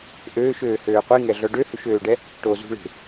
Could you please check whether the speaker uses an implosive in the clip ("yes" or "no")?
no